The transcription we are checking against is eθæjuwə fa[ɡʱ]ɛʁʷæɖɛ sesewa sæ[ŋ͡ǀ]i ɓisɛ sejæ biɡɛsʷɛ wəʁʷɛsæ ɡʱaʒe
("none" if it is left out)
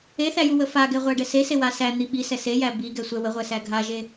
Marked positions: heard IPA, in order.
ɡ, n̪

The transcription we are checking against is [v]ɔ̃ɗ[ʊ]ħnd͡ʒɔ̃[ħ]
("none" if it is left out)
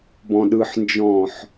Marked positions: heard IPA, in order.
b, ɯ, ħ

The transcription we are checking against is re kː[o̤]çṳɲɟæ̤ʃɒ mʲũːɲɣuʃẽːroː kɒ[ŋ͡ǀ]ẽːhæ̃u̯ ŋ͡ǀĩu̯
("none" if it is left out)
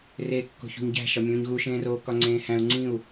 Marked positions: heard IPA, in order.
o̤, ŋ͡ǀ

